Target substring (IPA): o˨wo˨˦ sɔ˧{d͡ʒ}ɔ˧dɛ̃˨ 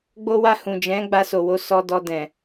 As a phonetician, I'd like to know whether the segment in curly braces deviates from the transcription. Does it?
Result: yes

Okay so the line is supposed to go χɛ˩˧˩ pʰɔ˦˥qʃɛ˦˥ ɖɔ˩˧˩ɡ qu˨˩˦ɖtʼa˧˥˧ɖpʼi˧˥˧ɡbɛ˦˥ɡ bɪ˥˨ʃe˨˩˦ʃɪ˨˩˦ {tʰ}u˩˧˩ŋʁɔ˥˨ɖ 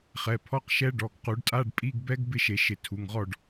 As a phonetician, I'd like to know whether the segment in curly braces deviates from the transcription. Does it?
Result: no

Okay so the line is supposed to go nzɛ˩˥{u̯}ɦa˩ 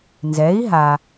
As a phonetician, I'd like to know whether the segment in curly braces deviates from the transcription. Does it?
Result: yes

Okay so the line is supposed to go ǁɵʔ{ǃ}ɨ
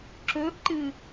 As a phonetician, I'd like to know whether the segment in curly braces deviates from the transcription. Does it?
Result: no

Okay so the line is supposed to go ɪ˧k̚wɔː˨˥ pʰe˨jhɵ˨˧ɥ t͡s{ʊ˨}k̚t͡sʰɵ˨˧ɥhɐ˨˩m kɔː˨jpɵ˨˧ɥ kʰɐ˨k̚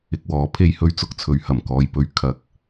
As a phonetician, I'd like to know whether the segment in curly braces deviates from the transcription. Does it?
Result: no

